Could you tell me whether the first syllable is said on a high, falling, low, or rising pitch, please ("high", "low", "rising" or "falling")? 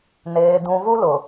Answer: low